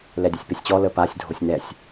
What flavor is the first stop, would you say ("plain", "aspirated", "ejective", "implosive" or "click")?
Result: plain